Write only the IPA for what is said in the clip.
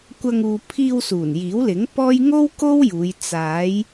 kʷɐ˧ŋ uː˨pʰiː˧w suː˨˩njiː˨˥wlɪ˨˥ŋ pɔː˥j ŋo˥w ko˥wjuː˨˧j t͡saː˨˧j

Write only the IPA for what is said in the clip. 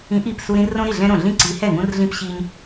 ĩ˨˥ʔi˧˩p su˦ɾĩ˦ rõ˦ɾi˥˩ɮɛ̃˦ɾõ˧˩ ɮĩ˦ǀi˨˥hɛ˥˩ŋũ˦r ɮĩ˦pɕi˦ɲ

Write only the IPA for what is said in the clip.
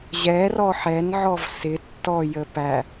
ʑɛ rɔħɛnʕɔv sɪ tːɔjə pæ

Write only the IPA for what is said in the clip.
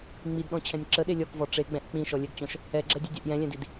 ŋ͡midɗɔ̃t͡ɕʰɛ̃nʲ ǁəɗe lʲɔkvɔ ʈ͡ʂeɡ͡bɛ̃ʔ k͡pĩʃɔlʲɛɡt͡ɕɔ̃ʃ | ɛɡ͡ǁɛdʲɛdʲɛʔ jɛ̃lʲɛ̃did

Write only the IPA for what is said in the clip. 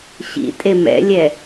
ɕḭ tʼemɛ̰lʲɛ

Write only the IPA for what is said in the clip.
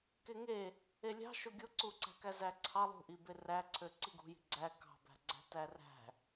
keŋe | elʲɑ̤ ʃoɡʲoǀuǀæ̤ kæzæǀʰɑ lˠṳʔibe ræǀʰø ǀiɡṳji̤ ɡ͡ǀæ kɑ̤bæ̤ ɡ͡ǀæ̤tæræ̤

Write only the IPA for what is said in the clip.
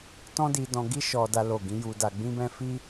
tɔ̃˦di˧dɔ̃˧ ɡi˦ʃɔ˧da˧ lo˨ɡĩ˧ ju˧da˧ ɡ͡bĩ˦bɛ̃˦ fi˦

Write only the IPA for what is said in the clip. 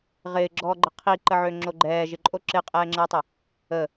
ʁɪːɡ͡ǁɔːɡ͡ǃə qʰiǃəʕøŋ͡ǁo ɡ͡ǃɛːʒɪǃʼo ǁɪqʼɛːŋ͡ǁəːtˤə | ə

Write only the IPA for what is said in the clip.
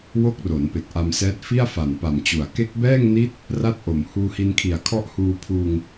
wo˦˥k̚ro˩˦n pe˨˩k̚ʔa˧msɛː˦˥t̚ fi˥˩a̯fa˨˩npa˨˩mt͡ɕu˨˩a̯ ke˦˥k̚bɛː˥˩ŋni˦˥t̚ | ra˥˩t̚ʔo˨˩m huː˧hi˧nkʰi˨˩a̯kʰɔ˦˥ʔ huː˧pʰuː˧ŋ

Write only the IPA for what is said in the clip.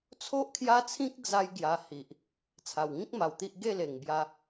t͡sʰo˦ʔkʰja˦t͡sʰĩ˦k̚ d͡za˦jɡja˧ hi˨ʔ | t͡sʰa˨˩wŋĩ˦k̚ ma˧wt̪i˦ʔ ɡe˥˧le˨˩ŋbja˧

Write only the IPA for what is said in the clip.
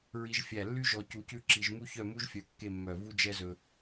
ɹi˧ʒfʲæ˧˩ lːy˥ʒɔ˧ cu˧cʉ˥˧ ǁi˧ʒmu˥ çœ˥˧mu˥ʒfʲœ˧ kːe˥˧mːœ˧˩ vu˥d͡ʒɛ˥zɵ˧

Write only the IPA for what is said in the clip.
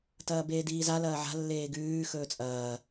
tɐːbeːdiːza lɐːʕa̤ lːeːɡʉː xɵːt͡sʼɐː

